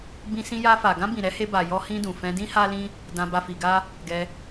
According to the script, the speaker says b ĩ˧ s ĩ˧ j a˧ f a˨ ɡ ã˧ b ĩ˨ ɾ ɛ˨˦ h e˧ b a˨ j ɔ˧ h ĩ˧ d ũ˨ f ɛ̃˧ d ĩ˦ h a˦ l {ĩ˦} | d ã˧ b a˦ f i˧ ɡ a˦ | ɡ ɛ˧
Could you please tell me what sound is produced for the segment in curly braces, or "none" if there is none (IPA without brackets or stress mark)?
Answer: ĩ˦